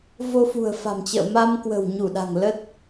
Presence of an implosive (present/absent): present